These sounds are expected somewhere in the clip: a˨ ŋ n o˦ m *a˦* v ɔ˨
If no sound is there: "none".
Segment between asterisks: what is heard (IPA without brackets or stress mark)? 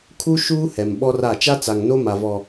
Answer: a˨